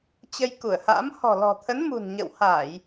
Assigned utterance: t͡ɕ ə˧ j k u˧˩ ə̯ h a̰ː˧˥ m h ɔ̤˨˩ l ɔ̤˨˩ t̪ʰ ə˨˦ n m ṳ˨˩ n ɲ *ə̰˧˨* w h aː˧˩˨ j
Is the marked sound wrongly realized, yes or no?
no